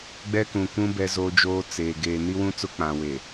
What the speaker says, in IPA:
ɡ͡b ɛ˦ k ũ˨ kʷ ũ˦ b ɛ˦ z oː˦ d͡ʒ oː˦ t͡s eː˨ ɡ eː˨ n i˦ w ũ˦ t͡s ʊ˦ k͡p ã˨ w e˨

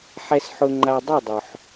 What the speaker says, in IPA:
ħ ɛ˦ s ħ ʊ˦ ŋ͡ǃ a˦ dˤ u˥˨ dˤ ʊ˩ ħ

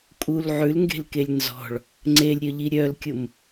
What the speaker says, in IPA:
kʼ u l ʕ ʉ l ŋ ɡ e̤ l k e lʲ n z ɔ̤ ɭ | ŋ͡ǀ e lʲ ɾʲ œ ʎ i ɾʲ œ l kʲ ʊ m

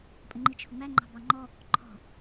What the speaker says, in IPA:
pʼ ə ŋ͡ǃ i t͡ʃʰ ʊ ŋ͡m æ ŋ͡ǃ ɑ̤ b ɑ ŋ͡ǃ ɔ | ǃʰ ɔ̤

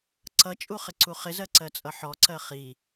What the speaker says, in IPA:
ǀ ʌ t͡ʃʼ u χ ɪ ǀ u χ ɪ z ɜ ǀ ɜ t͡sʼ ʌ ħ ɔ ǀ ɜ χ i

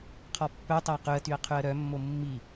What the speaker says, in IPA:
qʰ ɔ pː œ tˤ æ q ʉ ə̯ t y ə̯ qʰ ʉ ə̯ ɾ œ mː o mː i

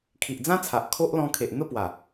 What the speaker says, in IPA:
kʰ i˨ ʔ d͡z ã˦ t͡sʰ a˨ ʔ kʰ o˦ ʔ l ɔ̃˧ kʰ e˨ ʔ n̪ ə˥˧ p w a˨˩

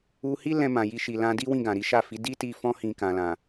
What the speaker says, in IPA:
u˧ h i˦ l ɛ̃˧ m ã˨ j i˧ ʃ i˨ l ã˧ d i˦ w ĩ˦˨ ɡ ã˨ ɾ i˨˦ ʃ a˦˨ f i˨˦ d i˦ t i˦ f ɔ̃˦ h ĩ˧ k ã˨ l ã˨

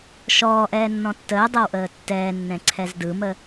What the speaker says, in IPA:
ʃ ɔː ʔ ɛː nː ɔ̃ tː əː dˤ ɛ w ʔ əː tː ɛː nː ɛ̃ ǀʰ ɛ z d ɯ m ə

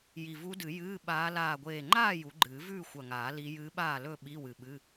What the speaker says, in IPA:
j i˧˩ v u˧˥ d ɨ˨˩˦ j ɨː˧˥˧ ɓ aː˧˥ l aː˧˩ ɡʷ eː˧˩ ŋ͡ǃ aː˥˨ j u˨˩˦ ɡ͡ǃ ɨː˨˩˦ v ʉː˥˨ xʷ ɐ˧˩ ŋ aː˨˩˦ l i˧˥ j ɨː˧˥ ɓ aː˥˨ l ɵ˥˨ ɓ i˧˥˧ w ɨ˧˩ ɓ ɨ˧˥˧

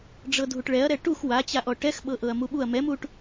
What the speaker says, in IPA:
ɖ͡ʐ ɤ dʱ u ʈ ɭ ɛ ɐ̯ ɾ ɛ ʈ u x w a t͡ɕ a ʔ ɔ ʈ ɛ x ɓ ɤ ʔ ɤ ɐ̯ m u ɓ u ɐ̯ m ɛ m u ʈ

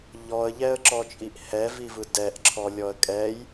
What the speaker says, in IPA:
ʎ ɔ ə̯ ʎ ɛ ə̯ ǁ ɔ t͡ʃʼ i ʔ h ɛ v i v ɯ d ɛ ʔ ǁʰ ɔ lʲ ɔ ə̯ kʼ ɛ j

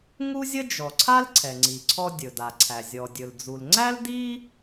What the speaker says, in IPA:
ŋ u˥ zʲ ə˥ d͡ʒ ɔ˩ ǀʰ a˥ l ǀʰ ɛ˩ ŋ͡ǀ i˩ ǀʰ ɔ˧ dʲ ɵ˩ d a˩ ǀʰ æ˩ zʲ ɔ˩ dʲ ɵ˩ l d͡z u˩ l ŋ͡ǀ æ˥ l d i˥

